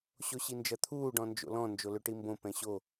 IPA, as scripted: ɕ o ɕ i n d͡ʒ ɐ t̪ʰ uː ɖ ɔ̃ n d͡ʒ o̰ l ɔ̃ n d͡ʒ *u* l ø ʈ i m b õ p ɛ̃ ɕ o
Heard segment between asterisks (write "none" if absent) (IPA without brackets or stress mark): o